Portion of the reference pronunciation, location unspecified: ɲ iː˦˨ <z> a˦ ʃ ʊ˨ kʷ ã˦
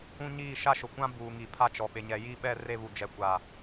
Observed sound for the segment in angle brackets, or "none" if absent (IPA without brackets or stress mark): ʃ